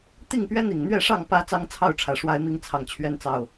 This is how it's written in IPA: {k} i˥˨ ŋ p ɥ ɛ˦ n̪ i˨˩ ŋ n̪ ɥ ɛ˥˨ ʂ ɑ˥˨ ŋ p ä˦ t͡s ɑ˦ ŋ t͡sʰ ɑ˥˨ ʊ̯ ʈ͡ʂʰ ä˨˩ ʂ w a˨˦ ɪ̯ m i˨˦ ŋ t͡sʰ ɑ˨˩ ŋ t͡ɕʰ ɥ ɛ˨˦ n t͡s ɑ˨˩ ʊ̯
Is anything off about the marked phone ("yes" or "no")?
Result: yes